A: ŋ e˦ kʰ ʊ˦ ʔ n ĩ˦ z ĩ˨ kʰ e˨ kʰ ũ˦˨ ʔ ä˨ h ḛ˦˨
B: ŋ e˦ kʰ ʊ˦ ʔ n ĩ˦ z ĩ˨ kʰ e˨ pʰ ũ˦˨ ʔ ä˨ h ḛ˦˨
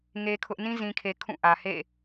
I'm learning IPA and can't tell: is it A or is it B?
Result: A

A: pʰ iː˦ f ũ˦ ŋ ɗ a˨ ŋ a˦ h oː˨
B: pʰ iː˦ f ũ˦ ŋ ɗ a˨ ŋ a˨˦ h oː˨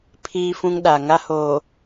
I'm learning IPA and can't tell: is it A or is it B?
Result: A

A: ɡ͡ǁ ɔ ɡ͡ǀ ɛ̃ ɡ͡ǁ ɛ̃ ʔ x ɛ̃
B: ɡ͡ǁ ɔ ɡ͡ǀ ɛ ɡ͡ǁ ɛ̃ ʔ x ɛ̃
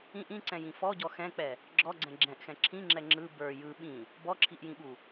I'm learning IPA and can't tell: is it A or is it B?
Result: A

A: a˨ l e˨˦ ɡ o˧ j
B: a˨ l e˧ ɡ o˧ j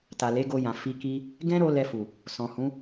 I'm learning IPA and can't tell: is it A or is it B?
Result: A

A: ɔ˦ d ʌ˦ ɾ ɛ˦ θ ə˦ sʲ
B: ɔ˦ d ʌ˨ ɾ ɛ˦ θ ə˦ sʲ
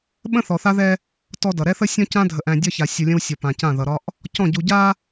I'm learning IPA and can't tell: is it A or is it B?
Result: B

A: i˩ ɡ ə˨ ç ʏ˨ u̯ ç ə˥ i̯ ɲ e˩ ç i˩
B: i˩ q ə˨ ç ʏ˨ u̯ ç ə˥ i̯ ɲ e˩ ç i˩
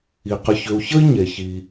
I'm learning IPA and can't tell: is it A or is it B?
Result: B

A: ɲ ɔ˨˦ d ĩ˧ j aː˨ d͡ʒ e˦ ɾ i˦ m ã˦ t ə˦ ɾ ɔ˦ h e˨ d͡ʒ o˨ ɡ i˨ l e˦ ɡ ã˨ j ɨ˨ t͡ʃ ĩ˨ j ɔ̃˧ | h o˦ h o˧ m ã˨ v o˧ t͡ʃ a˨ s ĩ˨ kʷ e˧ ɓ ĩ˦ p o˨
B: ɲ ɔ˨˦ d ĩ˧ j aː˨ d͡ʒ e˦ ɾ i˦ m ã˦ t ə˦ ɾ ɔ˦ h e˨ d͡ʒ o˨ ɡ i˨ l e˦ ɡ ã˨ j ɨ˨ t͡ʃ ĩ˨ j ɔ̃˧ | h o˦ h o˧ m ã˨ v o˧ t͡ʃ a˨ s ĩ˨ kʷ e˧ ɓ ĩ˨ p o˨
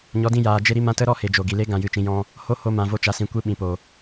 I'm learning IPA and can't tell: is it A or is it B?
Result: B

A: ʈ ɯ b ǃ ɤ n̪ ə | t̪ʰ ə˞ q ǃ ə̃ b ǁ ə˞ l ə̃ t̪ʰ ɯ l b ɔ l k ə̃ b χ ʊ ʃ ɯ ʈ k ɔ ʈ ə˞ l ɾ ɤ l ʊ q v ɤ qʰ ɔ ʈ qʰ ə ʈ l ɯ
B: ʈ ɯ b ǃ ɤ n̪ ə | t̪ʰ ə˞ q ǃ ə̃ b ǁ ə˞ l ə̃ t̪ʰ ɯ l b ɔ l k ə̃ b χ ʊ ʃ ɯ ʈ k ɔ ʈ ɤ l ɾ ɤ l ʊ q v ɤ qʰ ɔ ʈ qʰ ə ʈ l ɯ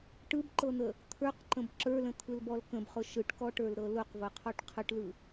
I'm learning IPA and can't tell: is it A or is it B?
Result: A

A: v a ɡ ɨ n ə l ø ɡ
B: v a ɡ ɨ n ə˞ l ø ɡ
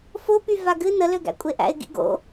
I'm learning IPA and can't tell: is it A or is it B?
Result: A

